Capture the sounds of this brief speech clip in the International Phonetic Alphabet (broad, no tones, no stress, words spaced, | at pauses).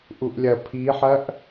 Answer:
ʔuʔlʲɐ pʰiħɐʔ